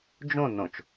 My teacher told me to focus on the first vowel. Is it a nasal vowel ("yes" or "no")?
yes